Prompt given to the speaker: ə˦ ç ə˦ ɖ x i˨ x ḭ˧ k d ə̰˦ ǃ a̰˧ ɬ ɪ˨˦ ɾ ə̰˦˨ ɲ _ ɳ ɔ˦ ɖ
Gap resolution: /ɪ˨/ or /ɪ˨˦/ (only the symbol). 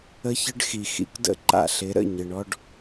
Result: ɪ˨